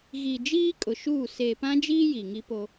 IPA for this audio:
ɣi˨d͡ʒiː˦ kʼʊ˨ʃuː˦˨ seː˨pã˦d͡ʒiː˦ ji˨ ŋi˦po˦

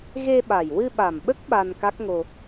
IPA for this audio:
ɣe˧ɓa˨˩j wɨ˧ɓa˨˩mɓə˦˥k̚ ɓa˧nka˦˥k̚ŋo˧

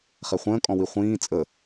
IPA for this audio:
χɛχʷə̃ːkʼɔ̃ wiχʷĩː t͡sʼə

